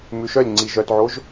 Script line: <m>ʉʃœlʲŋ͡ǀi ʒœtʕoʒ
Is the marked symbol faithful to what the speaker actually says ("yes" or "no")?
yes